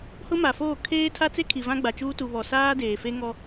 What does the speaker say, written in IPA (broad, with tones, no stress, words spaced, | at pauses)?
hʊ˦ma˨foː˦˨ kʰeː˦tʰa˦t͡se˦kʰi˨ vã˦ɡ͡ba˨t͡ʃuː˦ tu˨βɔ˨saː˦ deː˨fe˦ŋɔ˦